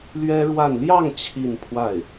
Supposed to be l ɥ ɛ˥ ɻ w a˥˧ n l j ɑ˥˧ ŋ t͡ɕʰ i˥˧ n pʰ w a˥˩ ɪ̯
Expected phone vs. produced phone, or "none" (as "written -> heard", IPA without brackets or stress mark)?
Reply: none